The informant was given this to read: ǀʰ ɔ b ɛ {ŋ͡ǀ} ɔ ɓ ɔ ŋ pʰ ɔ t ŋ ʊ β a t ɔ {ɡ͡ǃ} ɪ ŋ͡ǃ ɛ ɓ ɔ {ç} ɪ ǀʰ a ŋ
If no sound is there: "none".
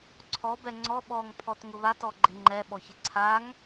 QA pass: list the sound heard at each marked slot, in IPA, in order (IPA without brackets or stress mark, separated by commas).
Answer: ŋ͡ǀ, ɡ͡ǃ, ç